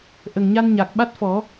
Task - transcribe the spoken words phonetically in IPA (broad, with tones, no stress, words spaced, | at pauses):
ʔə˨˩ŋɲa˧nɲa˨˩k̚ ɓa˦˥t̚fɔ˨˩˦